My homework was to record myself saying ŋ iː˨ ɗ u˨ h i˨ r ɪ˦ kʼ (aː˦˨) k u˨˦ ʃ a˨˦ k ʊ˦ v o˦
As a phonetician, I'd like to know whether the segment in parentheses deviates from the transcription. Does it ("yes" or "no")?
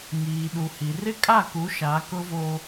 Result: yes